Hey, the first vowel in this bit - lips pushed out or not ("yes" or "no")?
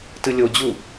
no